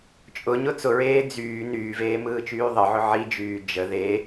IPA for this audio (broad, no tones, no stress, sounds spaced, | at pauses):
t͡ʃʼ ʊ ɲ ʊ t͡s ʊ ɹ eː d͡z yː n yː v eː m ɯː t͡ʃ yː ðˤ ə ʕ ʊ ʕ i d͡ʒ yː d͡ʒ ə ð e